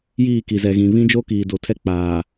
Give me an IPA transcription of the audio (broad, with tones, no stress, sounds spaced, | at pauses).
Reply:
j iː˦˨ k i˨ z ɛ˨ ɣ ĩ˨ β ĩ˦ d͡ʒ o˦ k iː˨ d o˨ tʰ ɛ˦ k͡p aː˨